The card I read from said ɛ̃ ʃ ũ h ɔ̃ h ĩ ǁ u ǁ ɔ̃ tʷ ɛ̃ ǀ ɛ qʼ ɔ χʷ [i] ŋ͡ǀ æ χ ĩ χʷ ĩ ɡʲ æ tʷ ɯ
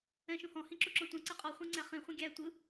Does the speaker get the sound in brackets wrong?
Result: yes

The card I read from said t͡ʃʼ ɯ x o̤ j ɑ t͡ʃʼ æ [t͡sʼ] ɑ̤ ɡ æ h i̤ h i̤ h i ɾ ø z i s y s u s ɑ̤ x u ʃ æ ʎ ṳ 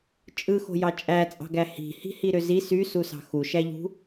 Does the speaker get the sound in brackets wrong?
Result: no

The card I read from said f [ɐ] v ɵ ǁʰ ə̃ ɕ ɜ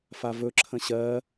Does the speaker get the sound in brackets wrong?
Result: yes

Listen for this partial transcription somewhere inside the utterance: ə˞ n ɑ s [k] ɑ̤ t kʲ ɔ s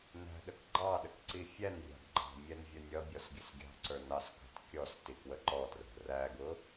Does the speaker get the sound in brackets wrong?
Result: no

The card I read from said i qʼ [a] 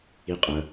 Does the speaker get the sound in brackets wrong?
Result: yes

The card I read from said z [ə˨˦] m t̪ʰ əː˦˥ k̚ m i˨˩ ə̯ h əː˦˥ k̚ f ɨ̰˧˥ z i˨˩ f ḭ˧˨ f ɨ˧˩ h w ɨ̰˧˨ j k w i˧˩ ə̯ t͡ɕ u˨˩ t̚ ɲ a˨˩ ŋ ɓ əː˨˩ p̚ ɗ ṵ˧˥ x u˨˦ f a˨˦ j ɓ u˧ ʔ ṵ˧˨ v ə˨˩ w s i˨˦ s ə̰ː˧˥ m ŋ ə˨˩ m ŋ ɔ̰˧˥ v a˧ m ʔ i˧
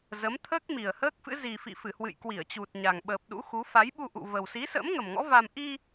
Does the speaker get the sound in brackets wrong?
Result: no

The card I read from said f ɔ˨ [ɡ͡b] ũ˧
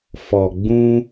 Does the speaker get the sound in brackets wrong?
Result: no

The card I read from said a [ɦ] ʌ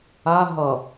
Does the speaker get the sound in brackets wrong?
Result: no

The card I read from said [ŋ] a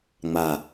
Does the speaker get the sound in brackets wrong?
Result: yes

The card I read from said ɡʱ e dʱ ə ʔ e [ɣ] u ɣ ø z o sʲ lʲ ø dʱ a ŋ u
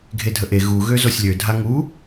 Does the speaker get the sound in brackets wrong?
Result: no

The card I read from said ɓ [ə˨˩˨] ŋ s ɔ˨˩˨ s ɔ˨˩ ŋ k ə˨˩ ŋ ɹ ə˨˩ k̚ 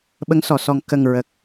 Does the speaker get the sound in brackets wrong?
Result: yes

